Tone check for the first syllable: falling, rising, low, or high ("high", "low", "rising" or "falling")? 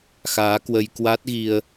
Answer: rising